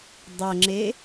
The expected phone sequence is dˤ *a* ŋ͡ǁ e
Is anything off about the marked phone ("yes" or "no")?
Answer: yes